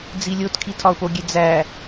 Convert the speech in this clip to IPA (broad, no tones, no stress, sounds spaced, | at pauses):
d͡z i lʲ o t kʰ i tʰ ɒ ʊ̯ p o ɡʲ e d͡z æ